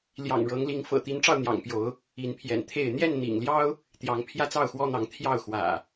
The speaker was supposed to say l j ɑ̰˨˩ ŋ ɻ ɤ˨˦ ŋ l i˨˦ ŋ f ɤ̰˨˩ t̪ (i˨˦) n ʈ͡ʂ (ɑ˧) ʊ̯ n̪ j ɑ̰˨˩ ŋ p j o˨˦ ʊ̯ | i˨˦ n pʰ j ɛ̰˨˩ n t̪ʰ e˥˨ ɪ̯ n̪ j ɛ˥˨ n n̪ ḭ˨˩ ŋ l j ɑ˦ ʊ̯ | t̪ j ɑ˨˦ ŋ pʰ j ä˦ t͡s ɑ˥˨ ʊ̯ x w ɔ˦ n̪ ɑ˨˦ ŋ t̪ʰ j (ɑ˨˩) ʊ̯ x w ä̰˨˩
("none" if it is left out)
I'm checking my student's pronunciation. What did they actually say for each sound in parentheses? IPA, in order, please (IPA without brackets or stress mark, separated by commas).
i˨˦, ɑ˧, ɑ˥˨